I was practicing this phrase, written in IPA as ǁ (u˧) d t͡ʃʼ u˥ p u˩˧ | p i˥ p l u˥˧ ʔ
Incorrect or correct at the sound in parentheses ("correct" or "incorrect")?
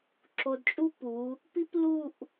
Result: incorrect